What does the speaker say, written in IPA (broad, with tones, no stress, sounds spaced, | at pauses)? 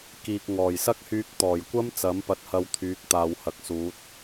k iː˨ k̚ ŋ ɔː˨˩ j s ɐ˥ k̚ h yː˧ k̚ t̪ ɔː˨˩ j kʷ ɐ˥ m t͡s ɐ˨˥ m p ɐ˧ t̚ h ɐ˧ w t̪ʰ yː˨˥ k̚ t̪ aː˨ w h ɐ˨˥ k̚ s uː˨˥ t̚